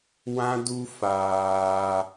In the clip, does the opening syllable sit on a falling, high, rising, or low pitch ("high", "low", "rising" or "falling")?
high